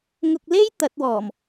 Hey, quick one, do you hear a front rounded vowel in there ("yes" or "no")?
no